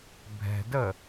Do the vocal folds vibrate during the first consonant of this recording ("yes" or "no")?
yes